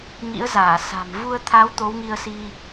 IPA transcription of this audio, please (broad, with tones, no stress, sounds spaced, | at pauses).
ŋ ḭ˧˥ ə̯ z aː˧˩ s a̤˨˩ m v u˧ ə̯ t̪ʰ a˨˦ w t̪ o˨˦ w ŋ i˧ ə̯ s i˧